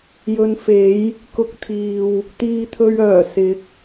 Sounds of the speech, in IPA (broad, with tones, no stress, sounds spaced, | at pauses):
j ɵ˧ n f e˨˥ j | k ʊ˧ k̚ t̪ʰ iː˨ w | t̪ iː˧ t̪ʰ ɵ˧ ɥ œː˨˩ s ɪ˨˥ k̚